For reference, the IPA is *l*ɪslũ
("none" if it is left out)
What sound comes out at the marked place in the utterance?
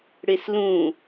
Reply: ɽ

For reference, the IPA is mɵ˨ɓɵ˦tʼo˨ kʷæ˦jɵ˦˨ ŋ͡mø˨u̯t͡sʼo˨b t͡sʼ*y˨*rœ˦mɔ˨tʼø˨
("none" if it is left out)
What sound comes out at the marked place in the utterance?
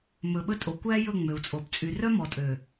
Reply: y˨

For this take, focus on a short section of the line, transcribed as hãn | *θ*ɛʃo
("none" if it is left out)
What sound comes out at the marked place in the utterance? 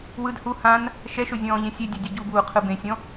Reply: ʃ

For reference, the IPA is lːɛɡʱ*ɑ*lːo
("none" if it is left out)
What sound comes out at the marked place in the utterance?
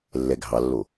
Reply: ɑ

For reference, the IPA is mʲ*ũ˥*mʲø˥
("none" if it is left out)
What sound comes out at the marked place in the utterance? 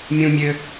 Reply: ũ˥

